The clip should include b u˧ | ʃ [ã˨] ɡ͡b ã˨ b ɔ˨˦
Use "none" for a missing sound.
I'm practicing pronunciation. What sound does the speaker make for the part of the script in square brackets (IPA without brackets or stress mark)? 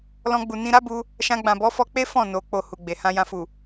ã˧